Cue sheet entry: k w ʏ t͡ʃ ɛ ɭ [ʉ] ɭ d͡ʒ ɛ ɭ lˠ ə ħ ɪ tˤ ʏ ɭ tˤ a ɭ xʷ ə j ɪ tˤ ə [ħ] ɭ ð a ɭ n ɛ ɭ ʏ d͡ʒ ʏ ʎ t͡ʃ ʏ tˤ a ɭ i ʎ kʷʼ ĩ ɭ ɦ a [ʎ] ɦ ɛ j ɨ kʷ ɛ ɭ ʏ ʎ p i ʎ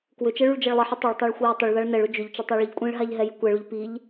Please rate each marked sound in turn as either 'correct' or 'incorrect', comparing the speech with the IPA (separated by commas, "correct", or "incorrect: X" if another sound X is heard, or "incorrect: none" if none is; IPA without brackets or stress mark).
correct, incorrect: none, correct